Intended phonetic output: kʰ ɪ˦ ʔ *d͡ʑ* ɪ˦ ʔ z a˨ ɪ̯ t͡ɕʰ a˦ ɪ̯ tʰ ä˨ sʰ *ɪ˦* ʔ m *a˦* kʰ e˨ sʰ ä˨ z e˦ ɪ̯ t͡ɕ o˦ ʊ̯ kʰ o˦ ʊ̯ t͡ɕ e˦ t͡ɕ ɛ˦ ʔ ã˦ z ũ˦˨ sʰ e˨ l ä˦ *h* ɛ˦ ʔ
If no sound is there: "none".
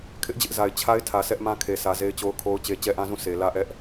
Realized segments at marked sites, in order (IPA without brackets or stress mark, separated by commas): d͡ʑ, ɛ˦, ã˦, ʔ